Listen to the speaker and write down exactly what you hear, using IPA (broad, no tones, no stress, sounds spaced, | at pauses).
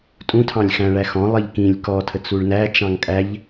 tʼ ũ tʰ ɑ̃ lʲ x æ̃ ɭ æ x ɔ̃ lˠ i ʎ k ĩ lʲ k ɔ tʰ ə t͡s u ɭ n æ t͡ʃ ɑ̃ ŋ kʼ æ ʎ